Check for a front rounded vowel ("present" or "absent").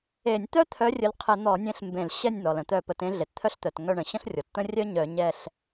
present